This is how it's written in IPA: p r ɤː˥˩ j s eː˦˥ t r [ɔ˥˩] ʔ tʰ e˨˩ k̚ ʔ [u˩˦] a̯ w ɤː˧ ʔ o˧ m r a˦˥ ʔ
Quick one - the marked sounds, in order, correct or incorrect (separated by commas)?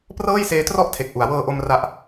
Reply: correct, correct